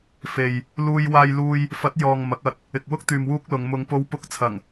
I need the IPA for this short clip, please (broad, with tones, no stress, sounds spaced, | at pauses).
f e˨ j | l uː˥ j w aː˥ j l uː˥ j | f ɐ˨˥ t̚ j ɔː˨ ŋ m ɐ˨˥ k̚ ɐ˧ t̚ | ɪ˨ k̚ w ʊ˥ k̚ t̪ yː˨ m w uː˥ k̚ l ʊ˨˧ ŋ m ʊ˨˧ ŋ p o˧ w p ʊ˧ k̚ t͡sʰ ɐ˨˩ ŋ